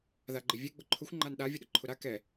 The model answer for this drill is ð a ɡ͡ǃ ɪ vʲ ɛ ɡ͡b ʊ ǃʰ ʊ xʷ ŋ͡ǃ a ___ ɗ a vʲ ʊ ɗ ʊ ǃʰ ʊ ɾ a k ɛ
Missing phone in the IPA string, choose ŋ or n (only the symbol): n